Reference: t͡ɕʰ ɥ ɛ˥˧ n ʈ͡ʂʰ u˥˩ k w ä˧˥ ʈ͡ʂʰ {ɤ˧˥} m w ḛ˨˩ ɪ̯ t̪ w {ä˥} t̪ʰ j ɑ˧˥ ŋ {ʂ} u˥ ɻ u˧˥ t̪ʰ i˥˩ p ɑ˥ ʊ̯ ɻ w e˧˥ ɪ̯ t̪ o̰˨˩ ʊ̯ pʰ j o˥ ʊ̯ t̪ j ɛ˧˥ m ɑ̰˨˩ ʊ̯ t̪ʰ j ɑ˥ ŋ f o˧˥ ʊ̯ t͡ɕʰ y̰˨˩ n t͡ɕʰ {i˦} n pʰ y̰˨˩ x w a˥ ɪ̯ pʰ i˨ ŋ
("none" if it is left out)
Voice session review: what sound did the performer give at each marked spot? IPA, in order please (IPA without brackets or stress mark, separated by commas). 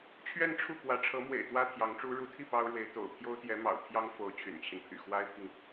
ɤ˧˥, ä˥, ʈ͡ʂ, i˦